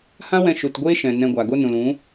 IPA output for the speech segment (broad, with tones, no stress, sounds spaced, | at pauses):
h ã˦ w ɛ̃˧ ʃ u˨ t ɡʷ eː˦ ʃ ɛ̃˨ n ɛ̃˧ ɡʷ a˨ ɡ o˦ n ũ˨ l ũ˨˦